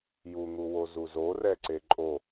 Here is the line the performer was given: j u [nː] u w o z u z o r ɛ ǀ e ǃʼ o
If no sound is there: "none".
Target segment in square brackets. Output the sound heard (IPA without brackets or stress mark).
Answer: n̪